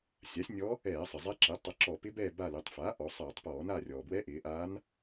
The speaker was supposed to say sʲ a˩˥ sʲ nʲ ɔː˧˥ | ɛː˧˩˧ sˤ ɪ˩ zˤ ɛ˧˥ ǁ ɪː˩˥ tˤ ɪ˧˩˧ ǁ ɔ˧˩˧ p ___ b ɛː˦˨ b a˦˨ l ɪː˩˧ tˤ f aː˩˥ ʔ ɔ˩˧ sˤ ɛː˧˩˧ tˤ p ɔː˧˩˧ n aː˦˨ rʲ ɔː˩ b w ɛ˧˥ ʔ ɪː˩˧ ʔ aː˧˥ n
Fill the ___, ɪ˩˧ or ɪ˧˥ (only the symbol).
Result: ɪ˧˥